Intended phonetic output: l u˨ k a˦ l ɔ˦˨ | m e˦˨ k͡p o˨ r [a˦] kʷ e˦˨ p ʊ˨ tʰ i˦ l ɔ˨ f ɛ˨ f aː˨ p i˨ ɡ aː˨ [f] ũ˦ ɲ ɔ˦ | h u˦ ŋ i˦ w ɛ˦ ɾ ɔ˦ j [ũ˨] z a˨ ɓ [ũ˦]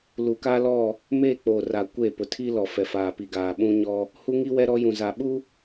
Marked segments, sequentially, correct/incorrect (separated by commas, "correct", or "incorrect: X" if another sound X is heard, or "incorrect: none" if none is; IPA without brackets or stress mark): incorrect: a˨, incorrect: ɓ, correct, incorrect: u˦